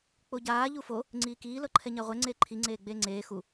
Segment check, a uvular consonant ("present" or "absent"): present